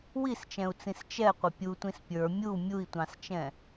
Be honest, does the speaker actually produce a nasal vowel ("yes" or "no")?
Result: yes